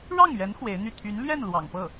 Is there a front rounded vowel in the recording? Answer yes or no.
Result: yes